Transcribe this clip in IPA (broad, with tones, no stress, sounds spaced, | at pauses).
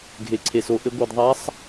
ɡʱ e˩ ǀʰ e˩ s o˩˧ ʔ ɘ˩˧ ɡʷ i˩ d ðˤ a˧˥ sˤ